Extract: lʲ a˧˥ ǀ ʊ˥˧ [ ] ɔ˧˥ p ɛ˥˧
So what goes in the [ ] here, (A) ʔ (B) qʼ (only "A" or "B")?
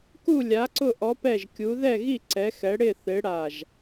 A